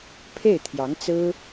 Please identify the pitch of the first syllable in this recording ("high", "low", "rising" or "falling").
falling